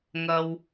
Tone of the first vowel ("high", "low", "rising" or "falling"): low